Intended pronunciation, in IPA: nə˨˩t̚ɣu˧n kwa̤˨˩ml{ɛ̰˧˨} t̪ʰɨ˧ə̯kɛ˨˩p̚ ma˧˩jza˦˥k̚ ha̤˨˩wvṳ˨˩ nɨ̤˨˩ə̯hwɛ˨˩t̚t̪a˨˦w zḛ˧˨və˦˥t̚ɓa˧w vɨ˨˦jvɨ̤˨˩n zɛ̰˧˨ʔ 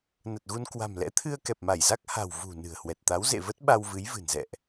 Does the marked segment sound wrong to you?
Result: yes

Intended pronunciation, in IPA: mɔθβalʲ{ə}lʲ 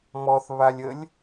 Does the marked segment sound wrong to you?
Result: no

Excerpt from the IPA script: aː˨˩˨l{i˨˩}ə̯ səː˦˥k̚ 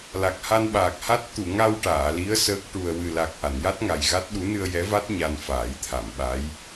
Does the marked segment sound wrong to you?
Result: yes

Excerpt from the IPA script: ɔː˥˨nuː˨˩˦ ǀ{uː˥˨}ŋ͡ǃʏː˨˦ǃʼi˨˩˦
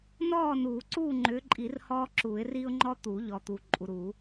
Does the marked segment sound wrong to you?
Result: no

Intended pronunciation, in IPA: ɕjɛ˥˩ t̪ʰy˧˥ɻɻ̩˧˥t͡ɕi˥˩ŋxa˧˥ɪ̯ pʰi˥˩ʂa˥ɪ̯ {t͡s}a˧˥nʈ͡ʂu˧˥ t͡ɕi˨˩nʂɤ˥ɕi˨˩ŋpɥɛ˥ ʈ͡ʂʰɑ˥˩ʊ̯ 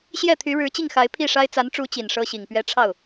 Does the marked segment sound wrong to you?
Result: no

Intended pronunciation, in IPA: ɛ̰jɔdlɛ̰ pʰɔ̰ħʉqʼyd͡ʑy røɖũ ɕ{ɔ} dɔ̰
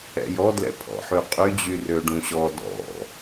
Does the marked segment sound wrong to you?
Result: no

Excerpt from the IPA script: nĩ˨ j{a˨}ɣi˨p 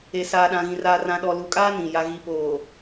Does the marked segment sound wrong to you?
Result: no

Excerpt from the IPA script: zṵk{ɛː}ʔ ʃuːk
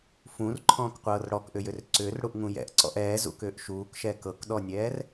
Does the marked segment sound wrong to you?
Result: yes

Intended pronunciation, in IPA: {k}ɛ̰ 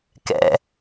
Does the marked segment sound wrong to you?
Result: no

